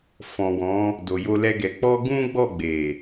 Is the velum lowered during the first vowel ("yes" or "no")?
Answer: yes